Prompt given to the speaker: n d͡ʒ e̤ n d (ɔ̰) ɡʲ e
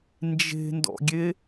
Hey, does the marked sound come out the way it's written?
yes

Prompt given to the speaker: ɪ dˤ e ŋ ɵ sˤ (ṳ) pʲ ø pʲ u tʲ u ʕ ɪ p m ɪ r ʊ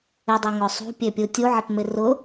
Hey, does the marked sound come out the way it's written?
yes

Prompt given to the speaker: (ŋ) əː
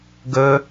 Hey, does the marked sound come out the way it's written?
no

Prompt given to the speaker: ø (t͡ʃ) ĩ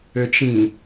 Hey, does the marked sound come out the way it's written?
yes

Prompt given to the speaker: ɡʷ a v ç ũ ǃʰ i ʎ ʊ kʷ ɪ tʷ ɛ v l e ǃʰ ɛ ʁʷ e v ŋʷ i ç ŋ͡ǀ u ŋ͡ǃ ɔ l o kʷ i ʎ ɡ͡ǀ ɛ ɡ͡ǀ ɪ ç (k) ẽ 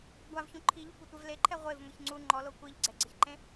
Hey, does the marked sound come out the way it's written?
no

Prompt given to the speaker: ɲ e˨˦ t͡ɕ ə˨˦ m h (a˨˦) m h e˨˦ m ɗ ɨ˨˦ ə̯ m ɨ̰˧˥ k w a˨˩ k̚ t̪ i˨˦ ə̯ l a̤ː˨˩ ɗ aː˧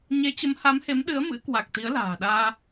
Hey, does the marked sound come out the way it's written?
yes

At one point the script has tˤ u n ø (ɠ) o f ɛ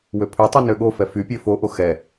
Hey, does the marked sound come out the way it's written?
yes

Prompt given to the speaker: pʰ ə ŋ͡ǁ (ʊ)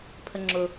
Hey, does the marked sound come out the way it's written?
yes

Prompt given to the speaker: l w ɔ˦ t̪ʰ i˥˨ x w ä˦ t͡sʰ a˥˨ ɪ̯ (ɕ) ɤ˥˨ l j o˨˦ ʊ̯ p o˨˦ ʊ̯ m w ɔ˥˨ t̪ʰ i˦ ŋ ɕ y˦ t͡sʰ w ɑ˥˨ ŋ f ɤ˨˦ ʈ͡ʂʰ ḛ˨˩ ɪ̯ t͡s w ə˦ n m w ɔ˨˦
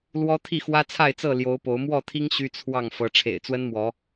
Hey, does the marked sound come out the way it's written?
no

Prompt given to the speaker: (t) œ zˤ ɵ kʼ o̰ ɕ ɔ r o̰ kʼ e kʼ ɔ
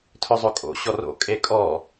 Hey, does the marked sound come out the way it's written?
no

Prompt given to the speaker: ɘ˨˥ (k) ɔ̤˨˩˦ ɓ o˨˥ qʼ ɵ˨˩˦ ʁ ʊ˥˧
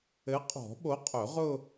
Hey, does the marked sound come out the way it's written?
no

